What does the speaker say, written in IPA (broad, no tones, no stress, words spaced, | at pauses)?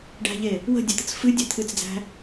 ɖæ̤ʎe | wə̤dʲɛt̪ət͡s fɨdʲɛ t̪ʰɨt͡sd͡zæ̤